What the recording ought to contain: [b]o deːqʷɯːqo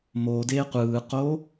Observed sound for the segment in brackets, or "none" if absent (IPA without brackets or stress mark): m